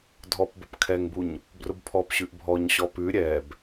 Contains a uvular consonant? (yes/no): no